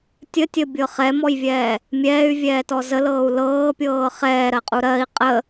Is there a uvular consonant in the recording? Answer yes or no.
yes